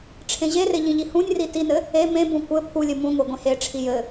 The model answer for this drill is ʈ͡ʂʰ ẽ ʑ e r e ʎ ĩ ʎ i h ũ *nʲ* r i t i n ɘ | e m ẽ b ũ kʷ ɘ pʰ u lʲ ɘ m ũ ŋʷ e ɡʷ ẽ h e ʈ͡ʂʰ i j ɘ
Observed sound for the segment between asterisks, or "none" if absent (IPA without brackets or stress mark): nʲ